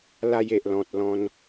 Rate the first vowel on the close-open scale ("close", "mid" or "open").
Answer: open